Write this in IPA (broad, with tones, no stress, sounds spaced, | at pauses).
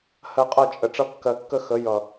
h ɜ˧ qʼ ʌ˦˨ t͡ʃʼ ə˨ ʈ͡ʂ ʌ˧ kː ɜ˨ kː ə˧ x ə˨˦ j ʌ˨